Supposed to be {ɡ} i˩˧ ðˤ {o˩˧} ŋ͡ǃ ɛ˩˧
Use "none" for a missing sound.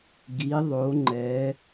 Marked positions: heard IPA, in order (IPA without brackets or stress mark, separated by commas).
ɡ, o˩˧